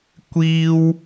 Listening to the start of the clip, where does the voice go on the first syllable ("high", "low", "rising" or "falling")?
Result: high